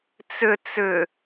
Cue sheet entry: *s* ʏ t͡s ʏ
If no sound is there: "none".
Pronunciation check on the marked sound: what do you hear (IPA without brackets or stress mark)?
t͡s